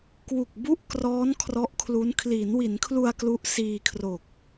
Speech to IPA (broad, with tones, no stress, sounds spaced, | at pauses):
k w u˨˩ k̚ b u˥˩ ʔ k r ɔː˦˥ n kʰ r ɔ˦˥ ʔ kʰ l u˦˥ n kʰ l iː˩˦ n w i˩˦ n kʰ l u˧ a̯ k l u˦˥ ʔ s iː˧ kʰ r o˨˩ k̚